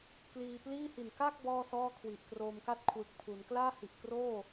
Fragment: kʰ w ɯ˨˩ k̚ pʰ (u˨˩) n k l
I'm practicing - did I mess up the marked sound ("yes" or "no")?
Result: yes